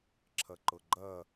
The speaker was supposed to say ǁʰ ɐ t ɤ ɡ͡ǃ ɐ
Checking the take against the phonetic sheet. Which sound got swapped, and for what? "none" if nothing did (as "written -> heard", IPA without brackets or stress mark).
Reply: t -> ǃ